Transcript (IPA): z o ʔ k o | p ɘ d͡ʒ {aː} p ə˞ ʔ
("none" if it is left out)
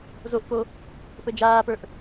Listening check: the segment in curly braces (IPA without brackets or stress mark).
aː